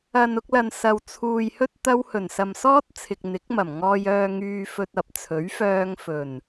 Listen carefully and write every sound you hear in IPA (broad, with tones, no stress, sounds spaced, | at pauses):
ɐ˨ n ʊ˧ k̚ l ɐ˨ n s ɐ˨ w t͡sʰ uː˨ j h ɵ˥ t̚ t̪ ɐ˥ w h ɵ˨˩ n s ɐ˨ m s ɔː˥ t̚ t͡sʰ ɪ˨ k̚ n̪ ɪ˨˥ k̚ m ɐ˨˩ m ŋ ɔː˧ j œː˧ ŋ yː˧ f ɵ˧ t̚ ɐ˨ p̚ t͡sʰ ɵ˨˥ ɥ f œː˧ ŋ f ɵ˨˩ n